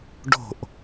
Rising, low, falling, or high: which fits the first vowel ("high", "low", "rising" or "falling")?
falling